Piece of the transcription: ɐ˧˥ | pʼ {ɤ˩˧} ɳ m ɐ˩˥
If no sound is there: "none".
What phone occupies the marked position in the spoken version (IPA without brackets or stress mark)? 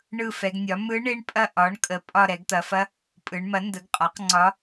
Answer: ɯ˩˧